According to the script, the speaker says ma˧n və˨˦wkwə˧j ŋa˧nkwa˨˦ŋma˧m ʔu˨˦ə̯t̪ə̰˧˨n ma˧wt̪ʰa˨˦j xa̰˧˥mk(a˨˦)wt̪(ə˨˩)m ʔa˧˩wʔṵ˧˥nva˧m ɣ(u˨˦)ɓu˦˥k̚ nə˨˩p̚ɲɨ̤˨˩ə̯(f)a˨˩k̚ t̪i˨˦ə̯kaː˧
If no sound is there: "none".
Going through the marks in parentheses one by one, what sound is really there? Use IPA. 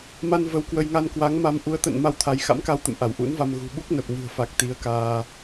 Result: a˧, ə̰˧˨, ṳ˨˩, f

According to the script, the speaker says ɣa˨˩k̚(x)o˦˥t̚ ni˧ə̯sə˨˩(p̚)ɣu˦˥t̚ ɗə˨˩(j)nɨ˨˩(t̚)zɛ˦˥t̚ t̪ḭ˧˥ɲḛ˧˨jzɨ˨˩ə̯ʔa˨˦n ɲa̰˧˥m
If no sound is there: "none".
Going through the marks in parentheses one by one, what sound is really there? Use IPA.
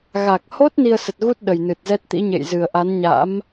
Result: h, t̚, j, t̚

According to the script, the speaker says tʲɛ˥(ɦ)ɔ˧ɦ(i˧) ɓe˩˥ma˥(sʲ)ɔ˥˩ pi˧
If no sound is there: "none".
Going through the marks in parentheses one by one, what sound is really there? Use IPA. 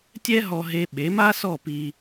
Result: ɦ, e˧, s

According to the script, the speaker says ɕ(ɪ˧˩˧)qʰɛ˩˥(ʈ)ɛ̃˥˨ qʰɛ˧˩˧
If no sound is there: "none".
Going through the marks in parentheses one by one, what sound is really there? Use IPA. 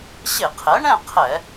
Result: ɪ˧˩˧, ɳ

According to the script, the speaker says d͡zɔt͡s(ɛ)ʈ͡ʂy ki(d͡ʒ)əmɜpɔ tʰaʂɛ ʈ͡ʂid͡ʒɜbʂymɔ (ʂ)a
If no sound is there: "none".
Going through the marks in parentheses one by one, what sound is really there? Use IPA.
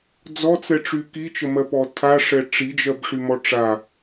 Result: ɛ, t͡ʃ, ʈ͡ʂ

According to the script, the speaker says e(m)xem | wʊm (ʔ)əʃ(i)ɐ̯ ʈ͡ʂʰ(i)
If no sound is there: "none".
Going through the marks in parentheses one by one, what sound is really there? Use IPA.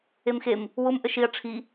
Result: m, ʔ, i, i

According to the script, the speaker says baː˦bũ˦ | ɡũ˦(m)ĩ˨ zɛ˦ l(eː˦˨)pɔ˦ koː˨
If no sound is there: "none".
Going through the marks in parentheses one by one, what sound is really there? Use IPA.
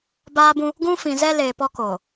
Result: f, eː˨

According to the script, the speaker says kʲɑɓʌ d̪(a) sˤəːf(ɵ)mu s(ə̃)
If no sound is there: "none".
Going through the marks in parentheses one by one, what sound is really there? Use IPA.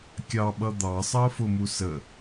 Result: ɑ, ʊ, ə

